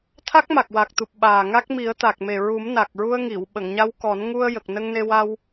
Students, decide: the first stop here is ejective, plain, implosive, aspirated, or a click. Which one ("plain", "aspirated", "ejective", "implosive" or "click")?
aspirated